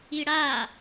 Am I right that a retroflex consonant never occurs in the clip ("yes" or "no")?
no